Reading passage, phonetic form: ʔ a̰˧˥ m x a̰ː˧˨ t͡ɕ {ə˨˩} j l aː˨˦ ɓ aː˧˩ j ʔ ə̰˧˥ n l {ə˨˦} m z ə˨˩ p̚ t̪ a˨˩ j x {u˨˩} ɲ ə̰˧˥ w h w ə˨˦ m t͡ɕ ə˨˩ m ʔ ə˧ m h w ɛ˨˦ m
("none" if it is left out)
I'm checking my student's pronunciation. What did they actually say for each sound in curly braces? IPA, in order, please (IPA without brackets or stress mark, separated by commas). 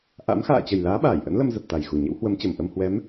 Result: ə˨˩, ə˧, u˨˩